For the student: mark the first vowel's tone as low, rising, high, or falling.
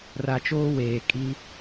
low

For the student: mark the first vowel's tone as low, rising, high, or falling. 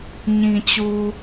low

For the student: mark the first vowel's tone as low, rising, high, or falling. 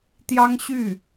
high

